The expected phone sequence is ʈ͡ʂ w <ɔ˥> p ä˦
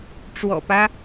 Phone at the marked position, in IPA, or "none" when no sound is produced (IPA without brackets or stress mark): ɔ̰˨˩